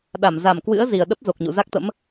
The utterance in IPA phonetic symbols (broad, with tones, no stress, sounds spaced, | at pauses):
ɗ a˧˩ m z a˧˩ m k w ɨ̰˧˥ ə̯ z i˨˩ ə̯ ɗ ə˦˥ p̚ z o˨˩ k̚ ɲ ṵ˧˨ z a˦˥ k̚ t̪ ə̰˧˥ m